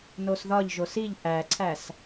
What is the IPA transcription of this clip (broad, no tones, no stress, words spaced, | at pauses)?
nosðɒʎʒo siʎ ʔæǀʰæs